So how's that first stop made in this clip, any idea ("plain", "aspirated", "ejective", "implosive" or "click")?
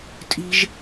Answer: ejective